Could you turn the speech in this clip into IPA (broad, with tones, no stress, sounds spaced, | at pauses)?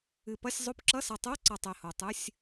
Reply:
ɨ˨˩ p ʌ˧˥˧ sʲ zˤ o˧˥˧ p ǁ ʌ˧˥˧ s ʌ˨˩ tˤ o˧˥˧ ǀ ʌ˨˩ tˤ e˨˩ h o˨˩ tˤ ɨ˧˥˧ sʲ